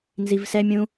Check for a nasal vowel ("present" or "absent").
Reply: present